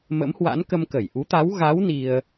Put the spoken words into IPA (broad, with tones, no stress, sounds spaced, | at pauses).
m ə̰˧˥ m h w a̰˧˥ n k ə˧ m k ə˧˩ j ʔ u˨˦ t̪ a˨˦ w ɣ a˨˦ w n i˧ ə̯